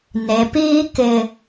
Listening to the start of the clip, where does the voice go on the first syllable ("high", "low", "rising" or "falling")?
low